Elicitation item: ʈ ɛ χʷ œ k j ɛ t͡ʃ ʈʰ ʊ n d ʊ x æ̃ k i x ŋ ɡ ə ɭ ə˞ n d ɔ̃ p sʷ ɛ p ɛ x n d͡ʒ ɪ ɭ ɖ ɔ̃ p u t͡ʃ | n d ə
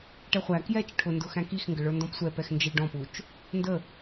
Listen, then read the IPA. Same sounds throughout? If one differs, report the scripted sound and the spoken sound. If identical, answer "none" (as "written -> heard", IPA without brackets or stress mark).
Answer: œ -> æ